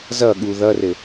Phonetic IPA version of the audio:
z ʌ ɠ u ð ʌ r ɘ

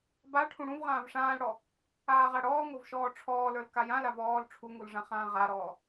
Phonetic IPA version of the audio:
b a ʈʰ ũ ɽ ũ v ʁ ãː v ʂ ãː l ɽ ɔ | aː ʁ a ɽ ɔː ŋ o v ʃ ɔː ʈ͡ʂʰ ɔː l ə˞ l k a j ã l a v ɔː l ʈ͡ʂʰ u ŋ u l ʐ ã χ ãː ʁ a ɾ ɔː

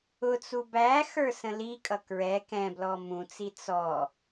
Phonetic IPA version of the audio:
ʊ t͡s u b æ x ə˞ s ə̃ l i kʼ ʌ k ɹ ɛ k ɛ̃ b l ɔ m ũ t͡s i t͡s ɔ

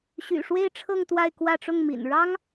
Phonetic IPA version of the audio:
ɕ y̰˨˩ ʂ w e˥˧ ɪ̯ ʈ͡ʂʰ ɤ˥˧ ŋ t̪ w a˥˧ ɪ̯ k w ä˥˧ ʈ͡ʂ ʊ˥˩ ŋ m ḭ˨˩ n ɻ ɑ˥ ŋ

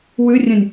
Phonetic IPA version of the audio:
w ʉ rʲ œ̃ nʲ

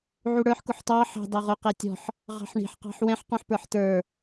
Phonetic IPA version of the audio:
ʕ u ɽ ə˞ ħ k ʊ ħ t ɑ ħ ɑ̤ d ɑ ʁ ʊ q ɛ tʲ ɔ̤ ħ | ʁ ɑ̤ ħ ɳ i̤ ħ q ɑ̤ ħ w ɛ̃ ħ q ũ ħ p ə˞ ħ t ə˞

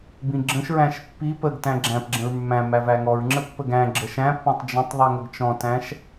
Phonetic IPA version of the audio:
b ĩ ɡ͡ǁ ə̃ ʃ ɹ æ̃ ʃ pː i p ə ɡ t æ̃ ɡ͡ǁ æ̃ p ɡ͡ǁ ə̃ ɹ mː æ̃ m æ v æ ŋ ɔ ɹ ŋ͡ǁ ə pː ə ɡ æ̃ ɡ͡ǁ ə ʃ æ̃ pː ɔ̃ tˤ d͡ʒ ə̃ tˤ ðˤ i ŋ ə ɡ t͡ʃ ɔ̃ t æ̃ ʃ

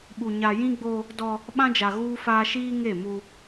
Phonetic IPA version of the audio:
ɓ u˨ ɲ a˨ j ĩ˦ ɡ͡b o˦ | d ɔ˦ | ɓ ã˦ d͡ʒ a˨ ɣ uː˦ f aː˦ ʃ iː˦ ŋ e˦˨ m u˦

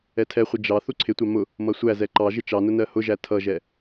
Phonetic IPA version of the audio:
ɛ tʰ ɛ χʷ ɪ d͡ʒ ɑ θ u ǀʰ ɪ tʷ ɑ m ʊ | m ʌ sʷ æ z ɛ ǃ ɑ ʒ ɪ t͡ʃ ɑ n ʊ n ɜ h ʊ ʒ æ tʰ ʌ ʒ ɛ

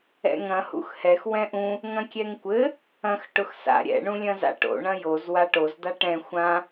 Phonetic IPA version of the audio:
ɛ̰ ŋ ɐ̃ h ṵ x h ɛ x w ɛ̃ ʔ ũ | ŋ ɐ̃ kʲ ɛ ŋ kʷ ɘ | ɐ̃ x ʈ ʊ x s a̰ ɾʲ ɛ̰ ɳ ũ lʲ ɐ̃ z a̰ ʈ o̰ ɳ ɐ̃ j o z w a ʈ o z d̪ a ʈ ɛ̃ xʷ ã

